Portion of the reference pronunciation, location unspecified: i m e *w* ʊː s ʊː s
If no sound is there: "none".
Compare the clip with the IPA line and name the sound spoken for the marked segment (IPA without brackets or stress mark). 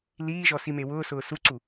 w